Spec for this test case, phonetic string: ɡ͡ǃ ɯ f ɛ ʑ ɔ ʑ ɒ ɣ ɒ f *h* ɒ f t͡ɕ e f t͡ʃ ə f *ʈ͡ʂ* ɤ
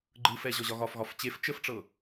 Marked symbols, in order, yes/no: no, yes

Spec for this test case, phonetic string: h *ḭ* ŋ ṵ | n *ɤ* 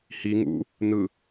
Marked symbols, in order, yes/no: no, no

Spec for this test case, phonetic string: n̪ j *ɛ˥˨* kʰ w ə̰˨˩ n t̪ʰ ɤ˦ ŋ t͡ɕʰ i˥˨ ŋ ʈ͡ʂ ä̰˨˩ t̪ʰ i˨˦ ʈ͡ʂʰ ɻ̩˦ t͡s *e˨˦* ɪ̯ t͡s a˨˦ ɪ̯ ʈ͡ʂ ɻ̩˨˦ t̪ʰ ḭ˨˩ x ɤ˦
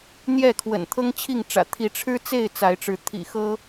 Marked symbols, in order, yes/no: yes, no

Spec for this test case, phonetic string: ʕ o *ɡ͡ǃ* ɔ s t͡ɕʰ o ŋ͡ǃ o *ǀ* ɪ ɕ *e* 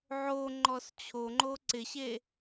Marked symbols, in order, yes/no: no, yes, yes

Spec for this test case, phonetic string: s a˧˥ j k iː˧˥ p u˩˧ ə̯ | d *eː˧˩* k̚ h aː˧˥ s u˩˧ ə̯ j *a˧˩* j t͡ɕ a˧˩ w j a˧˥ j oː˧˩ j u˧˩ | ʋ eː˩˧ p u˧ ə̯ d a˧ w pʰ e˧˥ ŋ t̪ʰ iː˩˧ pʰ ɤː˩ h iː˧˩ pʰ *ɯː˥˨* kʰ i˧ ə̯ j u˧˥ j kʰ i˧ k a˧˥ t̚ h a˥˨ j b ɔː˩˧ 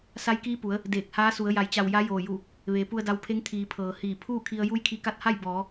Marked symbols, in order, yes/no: yes, no, no

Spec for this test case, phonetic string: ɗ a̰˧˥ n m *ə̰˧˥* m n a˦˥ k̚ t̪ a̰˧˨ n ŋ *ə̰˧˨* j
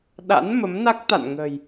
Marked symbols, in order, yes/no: no, no

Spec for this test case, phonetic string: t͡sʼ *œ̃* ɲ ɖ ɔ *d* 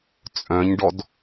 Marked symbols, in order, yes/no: yes, yes

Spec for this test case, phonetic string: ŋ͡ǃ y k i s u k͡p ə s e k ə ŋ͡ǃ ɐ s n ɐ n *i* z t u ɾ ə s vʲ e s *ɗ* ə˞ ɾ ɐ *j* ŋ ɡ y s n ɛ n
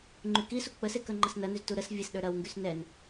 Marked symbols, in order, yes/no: no, yes, no

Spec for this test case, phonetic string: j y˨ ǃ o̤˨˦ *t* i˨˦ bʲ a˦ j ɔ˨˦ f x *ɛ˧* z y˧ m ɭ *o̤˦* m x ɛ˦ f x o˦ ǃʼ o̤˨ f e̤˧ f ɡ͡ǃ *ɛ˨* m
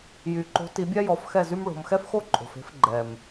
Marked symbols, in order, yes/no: yes, no, no, yes

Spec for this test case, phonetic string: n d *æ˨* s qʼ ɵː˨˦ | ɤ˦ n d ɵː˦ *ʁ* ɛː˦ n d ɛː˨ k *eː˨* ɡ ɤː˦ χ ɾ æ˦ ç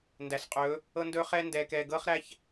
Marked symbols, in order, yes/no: yes, no, no

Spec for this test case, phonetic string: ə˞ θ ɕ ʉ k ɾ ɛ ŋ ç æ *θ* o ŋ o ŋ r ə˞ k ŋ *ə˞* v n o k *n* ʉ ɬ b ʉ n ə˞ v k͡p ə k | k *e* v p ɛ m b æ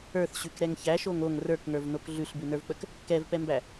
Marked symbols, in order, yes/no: no, yes, no, no

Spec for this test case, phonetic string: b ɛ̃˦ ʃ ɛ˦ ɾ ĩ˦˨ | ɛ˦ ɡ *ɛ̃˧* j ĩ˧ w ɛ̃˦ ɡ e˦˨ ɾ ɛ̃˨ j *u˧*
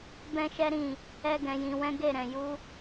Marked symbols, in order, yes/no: yes, yes

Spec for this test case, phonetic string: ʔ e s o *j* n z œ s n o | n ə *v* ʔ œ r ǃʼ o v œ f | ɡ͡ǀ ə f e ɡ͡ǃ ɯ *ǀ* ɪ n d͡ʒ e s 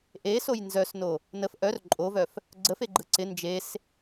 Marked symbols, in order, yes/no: yes, no, yes

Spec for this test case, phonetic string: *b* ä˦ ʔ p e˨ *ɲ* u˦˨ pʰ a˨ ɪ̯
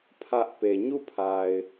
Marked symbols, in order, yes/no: no, yes

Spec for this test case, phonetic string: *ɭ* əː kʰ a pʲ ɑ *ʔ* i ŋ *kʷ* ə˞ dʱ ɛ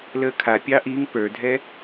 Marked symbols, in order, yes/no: no, yes, no

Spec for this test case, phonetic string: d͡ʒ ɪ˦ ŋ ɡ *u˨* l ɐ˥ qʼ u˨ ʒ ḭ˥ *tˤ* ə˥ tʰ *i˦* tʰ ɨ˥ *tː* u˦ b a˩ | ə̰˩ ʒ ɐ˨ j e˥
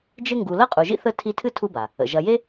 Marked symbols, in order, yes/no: yes, no, yes, no

